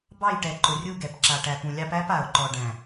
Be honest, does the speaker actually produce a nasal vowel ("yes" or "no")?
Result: yes